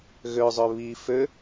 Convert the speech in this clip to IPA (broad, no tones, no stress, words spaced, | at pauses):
ɣøzˤø βi fø